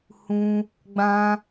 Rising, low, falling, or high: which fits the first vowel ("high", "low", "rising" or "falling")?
high